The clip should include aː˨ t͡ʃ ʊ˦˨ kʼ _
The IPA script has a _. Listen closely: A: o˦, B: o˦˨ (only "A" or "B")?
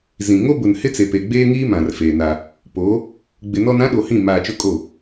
B